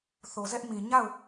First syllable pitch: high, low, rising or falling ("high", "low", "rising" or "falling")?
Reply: low